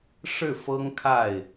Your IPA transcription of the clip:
ʂ ɻ̩˥˩ f ɤ˥ ŋ kʰ a˥˩ ɪ̯

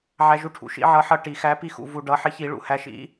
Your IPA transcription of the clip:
ʕ æ˧ ʒ u˧ ʈʰ ṵ˨˩˦ ʃ ḭ˨˥ ʕ ʌ˨˥ ħ ʌ˧ ʈ i˨˩˦ x æ˨˥ p i˧ x ṵ˧ v u˧ ɖ ʌ˨˥ ħ ɪ˨˥ ç i˨˩˦ ɭ ṵ˨˩˦ h æ˨˥ ʃ ḭ˨˥

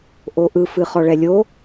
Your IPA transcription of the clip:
ʔ o ʔ ɯ f ɨ χ ɔ ɭ ɛ lʲ o

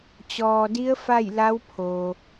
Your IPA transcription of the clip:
t͡ɕ ɔː˩ d i˧˥ ə̯ f a˥˨ j l a˧˥ w pʰ o˩

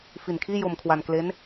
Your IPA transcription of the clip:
f i˨˩ n kʰ iː˥˩ j o˧ m kʰ w a˧ n k l e˦˥ n

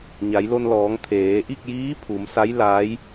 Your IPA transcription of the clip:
ɲ a˩˧ j l o˧ n l ɔː˩˧ ŋ t̪ʰ eː˩˧ ʔ i˥˨ k̚ j iː˧˥ pʰ u˩˧ m s a˧˥ j l aː˧˥ j

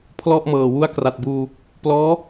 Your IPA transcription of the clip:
pʰ l ɔ˥˩ ʔ m ɤː˨˩ w u˦˥ a̯ k r a˨˩ t̚ b uː˧ | p l ɔː˦˥

